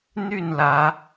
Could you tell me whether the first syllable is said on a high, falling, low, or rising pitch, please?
falling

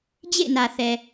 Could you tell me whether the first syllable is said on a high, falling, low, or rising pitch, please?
falling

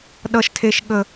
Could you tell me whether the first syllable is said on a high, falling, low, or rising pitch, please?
low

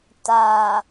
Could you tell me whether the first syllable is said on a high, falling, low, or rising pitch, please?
low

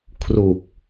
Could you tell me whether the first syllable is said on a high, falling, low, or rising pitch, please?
low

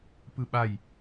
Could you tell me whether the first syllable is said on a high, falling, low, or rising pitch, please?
falling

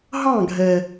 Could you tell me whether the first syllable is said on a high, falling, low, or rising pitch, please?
falling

